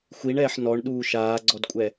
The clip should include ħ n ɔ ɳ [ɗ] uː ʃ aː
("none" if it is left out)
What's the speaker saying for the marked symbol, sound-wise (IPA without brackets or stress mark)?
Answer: ɗ